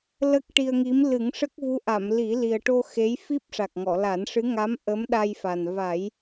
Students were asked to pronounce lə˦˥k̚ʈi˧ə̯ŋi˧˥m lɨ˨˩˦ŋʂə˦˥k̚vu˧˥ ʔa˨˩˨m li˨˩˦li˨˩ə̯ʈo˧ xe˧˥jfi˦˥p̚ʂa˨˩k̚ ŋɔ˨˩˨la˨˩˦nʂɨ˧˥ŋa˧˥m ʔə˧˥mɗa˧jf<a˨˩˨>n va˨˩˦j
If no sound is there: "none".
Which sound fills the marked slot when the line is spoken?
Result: a˨˩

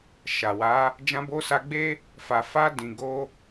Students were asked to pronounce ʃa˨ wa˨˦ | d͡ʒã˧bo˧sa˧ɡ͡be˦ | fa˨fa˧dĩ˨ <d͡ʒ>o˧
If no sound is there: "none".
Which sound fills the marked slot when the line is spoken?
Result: ɡ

